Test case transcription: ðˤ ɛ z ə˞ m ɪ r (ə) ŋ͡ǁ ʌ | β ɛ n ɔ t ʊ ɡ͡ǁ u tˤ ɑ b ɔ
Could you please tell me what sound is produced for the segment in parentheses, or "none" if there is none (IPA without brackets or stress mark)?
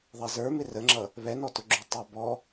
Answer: ə